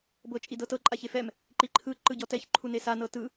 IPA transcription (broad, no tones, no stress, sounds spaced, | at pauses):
b ɤ t͡ʃʼ i d ɤ t ɤ ǃʼ a ç e f ɛ m | ǃ i ǃʰ ɯ ǃ ɯ ɟ ɔ t ɛ ç ǃʰ u n e s a n ɤ t ɯ